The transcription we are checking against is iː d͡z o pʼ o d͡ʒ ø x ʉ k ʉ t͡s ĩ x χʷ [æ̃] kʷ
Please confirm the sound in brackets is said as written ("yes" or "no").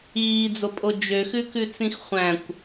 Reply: yes